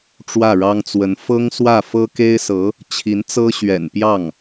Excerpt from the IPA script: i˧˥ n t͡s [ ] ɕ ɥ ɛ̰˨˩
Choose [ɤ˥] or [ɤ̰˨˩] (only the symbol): ɤ˥